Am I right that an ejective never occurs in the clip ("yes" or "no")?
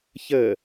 yes